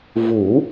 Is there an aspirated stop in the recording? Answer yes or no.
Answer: no